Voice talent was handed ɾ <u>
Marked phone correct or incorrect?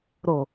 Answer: incorrect